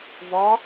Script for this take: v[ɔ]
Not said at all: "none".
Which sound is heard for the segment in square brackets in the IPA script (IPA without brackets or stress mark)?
ɔ